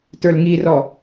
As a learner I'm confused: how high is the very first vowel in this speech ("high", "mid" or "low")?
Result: mid